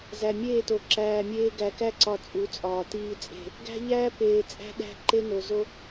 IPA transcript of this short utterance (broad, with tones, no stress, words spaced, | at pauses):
zæ˨mʲeː˦˨to˨ ǁæː˨mʲeː˦ ɡæ˨kæ˦ǀɒ˨ t͡sʼu˨˦t͡sʼɒː˨tiː˦t͡sʼe̤˦˨ | ɡæ̤˦ ʎæː˦peː˨t͡sʼæ̤˦ ɗæ̤˦ ǃe˦no˨ zo˦